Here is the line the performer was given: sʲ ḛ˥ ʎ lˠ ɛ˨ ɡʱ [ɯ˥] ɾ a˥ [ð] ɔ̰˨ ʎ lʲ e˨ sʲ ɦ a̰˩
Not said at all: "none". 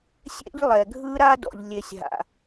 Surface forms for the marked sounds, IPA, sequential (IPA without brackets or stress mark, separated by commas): ɯ˥, d